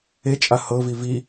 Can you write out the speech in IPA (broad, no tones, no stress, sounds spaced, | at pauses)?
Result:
e t͡ʃʼ a h ɤ v i v i